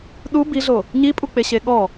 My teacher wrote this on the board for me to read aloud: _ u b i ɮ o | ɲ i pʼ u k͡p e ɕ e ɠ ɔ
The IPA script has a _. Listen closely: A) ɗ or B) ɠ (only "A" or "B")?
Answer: A